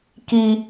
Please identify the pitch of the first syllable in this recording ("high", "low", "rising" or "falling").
high